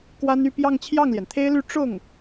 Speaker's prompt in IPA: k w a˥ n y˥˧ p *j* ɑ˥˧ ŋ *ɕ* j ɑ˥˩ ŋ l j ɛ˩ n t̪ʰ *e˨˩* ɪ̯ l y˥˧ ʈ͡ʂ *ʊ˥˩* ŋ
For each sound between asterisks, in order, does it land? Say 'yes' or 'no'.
yes, no, no, yes

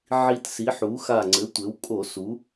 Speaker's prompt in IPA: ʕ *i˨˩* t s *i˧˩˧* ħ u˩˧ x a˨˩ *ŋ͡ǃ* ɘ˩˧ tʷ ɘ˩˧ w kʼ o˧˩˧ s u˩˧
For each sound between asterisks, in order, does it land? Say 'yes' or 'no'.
yes, no, no

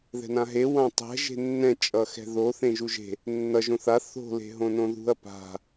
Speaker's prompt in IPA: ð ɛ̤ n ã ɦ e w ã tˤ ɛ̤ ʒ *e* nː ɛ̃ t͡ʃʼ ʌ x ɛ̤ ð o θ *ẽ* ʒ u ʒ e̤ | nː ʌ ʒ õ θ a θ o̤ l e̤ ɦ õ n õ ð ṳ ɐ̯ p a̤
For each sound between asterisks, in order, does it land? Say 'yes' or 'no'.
no, yes

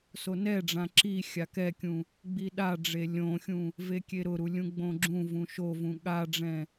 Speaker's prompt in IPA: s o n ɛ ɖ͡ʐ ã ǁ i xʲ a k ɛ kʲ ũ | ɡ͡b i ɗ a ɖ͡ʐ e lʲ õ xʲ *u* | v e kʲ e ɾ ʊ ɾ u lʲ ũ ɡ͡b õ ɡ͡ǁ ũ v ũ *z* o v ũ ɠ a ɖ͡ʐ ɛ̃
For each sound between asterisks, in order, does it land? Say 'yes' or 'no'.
no, no

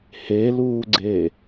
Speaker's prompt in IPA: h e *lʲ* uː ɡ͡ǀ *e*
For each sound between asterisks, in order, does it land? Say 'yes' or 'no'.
no, yes

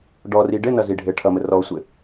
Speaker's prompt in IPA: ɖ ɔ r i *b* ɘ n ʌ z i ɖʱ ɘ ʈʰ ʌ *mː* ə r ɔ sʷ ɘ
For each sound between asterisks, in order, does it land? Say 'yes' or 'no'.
no, no

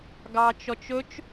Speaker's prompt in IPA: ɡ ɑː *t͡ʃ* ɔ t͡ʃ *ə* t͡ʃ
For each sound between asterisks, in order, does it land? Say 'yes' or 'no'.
yes, no

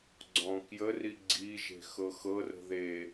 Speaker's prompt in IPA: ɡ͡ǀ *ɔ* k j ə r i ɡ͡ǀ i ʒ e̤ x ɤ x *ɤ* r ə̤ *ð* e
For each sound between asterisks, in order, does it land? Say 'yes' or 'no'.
no, yes, yes

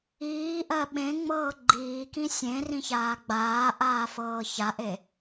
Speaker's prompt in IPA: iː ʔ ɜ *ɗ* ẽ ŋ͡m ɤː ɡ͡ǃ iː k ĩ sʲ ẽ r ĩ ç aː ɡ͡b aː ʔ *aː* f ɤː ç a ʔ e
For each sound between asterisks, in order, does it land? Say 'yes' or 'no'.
no, yes

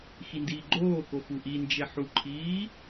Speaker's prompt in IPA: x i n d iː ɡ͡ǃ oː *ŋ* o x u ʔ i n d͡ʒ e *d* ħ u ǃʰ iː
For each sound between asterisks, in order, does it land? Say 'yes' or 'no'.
no, no

